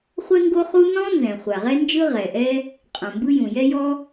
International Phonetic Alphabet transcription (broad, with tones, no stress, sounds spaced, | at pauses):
χʷ ɛ˥ ŋ ɡ o˥ χ u˥ n ɔ̃˥ n z ɛ̃˩ χʷ a˩ ʁ ɛ˥ n d͡ʒ ɯ˥ ʁ ɛ˩ ʔ ɛ˥ | qʼ õ˩ m b ɯ˥ j ũ˩ j ɛ˥ j ɔ˥